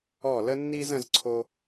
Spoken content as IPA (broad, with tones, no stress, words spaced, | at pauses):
ɔ˦˨ lə˦nːi˦z ə̃˦zǀʰo˦